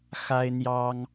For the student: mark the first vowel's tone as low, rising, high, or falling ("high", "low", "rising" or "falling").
high